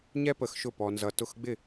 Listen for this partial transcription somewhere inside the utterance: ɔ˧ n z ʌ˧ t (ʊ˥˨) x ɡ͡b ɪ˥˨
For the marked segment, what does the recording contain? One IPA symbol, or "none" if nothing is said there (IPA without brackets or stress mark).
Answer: ʊ˥˨